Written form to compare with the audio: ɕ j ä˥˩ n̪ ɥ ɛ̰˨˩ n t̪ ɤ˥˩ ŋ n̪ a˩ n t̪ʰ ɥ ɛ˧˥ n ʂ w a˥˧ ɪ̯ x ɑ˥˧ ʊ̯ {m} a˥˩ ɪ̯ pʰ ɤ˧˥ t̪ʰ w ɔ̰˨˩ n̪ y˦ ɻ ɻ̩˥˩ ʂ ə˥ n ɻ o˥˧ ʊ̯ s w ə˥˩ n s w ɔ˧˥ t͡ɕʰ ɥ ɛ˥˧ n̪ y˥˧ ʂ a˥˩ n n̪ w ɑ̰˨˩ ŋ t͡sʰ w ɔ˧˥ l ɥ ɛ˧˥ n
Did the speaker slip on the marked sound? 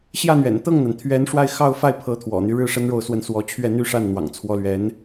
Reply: yes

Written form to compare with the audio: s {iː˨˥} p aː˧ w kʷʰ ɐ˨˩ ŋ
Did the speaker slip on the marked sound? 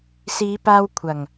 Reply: yes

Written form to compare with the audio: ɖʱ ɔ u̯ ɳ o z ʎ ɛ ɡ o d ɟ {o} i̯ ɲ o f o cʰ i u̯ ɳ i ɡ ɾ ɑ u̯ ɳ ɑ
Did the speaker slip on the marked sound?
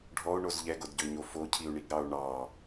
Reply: yes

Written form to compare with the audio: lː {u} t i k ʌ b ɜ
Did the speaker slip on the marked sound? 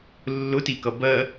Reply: yes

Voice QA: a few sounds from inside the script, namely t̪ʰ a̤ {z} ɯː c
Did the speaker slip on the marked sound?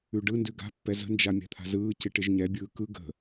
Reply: no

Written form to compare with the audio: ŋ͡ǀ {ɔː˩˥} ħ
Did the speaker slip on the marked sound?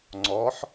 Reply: no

